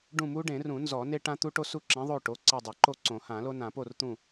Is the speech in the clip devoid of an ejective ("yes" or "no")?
yes